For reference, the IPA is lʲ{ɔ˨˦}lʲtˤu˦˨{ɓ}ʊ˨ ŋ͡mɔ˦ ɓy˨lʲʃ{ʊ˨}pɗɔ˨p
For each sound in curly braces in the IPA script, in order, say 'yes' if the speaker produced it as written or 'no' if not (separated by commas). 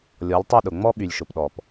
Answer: yes, no, yes